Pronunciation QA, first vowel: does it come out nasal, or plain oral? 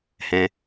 nasal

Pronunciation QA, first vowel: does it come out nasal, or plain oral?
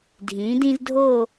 nasal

